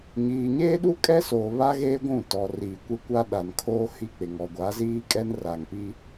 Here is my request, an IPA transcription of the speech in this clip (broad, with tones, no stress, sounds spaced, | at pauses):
ɲ iː˨ ɲ eː˦ ɗ u˦ kʼ ɛ˦ s oː˨ β a˦ ɣ eː˦ ɡʷ ũ˦˨ t ɔ˨ r iː˨ kʷ e˦ kʷ a˦ ɗ a˨ n kʰ oː˦ h i˦˨ k͡p ɪ˨ ŋ ɔ˨ ɡʷ a˨˦ z iː˦ kʼ ɛ˦ n r a˨ ŋ p i˦